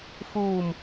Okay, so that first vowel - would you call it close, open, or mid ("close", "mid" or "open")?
close